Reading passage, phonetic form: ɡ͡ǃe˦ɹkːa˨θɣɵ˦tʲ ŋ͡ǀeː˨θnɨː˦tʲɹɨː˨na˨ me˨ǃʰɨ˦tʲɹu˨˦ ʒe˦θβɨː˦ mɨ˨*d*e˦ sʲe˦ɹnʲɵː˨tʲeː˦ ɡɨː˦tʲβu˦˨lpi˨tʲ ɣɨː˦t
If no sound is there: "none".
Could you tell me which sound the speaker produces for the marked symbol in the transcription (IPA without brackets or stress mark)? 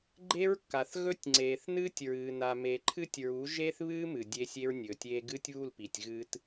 dʲ